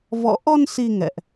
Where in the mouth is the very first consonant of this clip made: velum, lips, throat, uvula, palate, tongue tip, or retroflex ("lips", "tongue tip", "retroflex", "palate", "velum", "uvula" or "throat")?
lips